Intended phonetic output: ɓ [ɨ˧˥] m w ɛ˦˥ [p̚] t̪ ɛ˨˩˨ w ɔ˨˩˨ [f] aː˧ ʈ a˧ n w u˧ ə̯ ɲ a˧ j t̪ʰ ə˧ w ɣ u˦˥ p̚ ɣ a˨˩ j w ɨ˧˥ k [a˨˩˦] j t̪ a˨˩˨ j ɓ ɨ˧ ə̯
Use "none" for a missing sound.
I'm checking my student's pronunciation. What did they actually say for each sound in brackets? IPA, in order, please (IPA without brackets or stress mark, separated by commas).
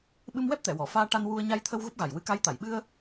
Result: ɨ˧, p̚, f, a˧˥